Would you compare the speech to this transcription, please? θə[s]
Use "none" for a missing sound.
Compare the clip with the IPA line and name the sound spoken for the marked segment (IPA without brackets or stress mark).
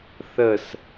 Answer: s